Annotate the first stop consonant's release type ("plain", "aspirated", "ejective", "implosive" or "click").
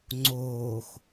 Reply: click